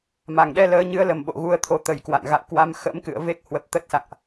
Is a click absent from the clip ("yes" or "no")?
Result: yes